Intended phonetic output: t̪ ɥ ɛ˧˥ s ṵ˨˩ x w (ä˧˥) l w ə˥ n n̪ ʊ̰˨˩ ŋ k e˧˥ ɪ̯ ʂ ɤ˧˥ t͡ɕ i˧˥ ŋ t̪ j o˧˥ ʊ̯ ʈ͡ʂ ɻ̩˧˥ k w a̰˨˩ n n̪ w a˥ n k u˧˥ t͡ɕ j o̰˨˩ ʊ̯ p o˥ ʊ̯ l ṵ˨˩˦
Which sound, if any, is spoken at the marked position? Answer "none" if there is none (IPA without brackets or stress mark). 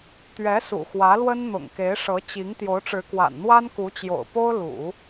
ä˧˥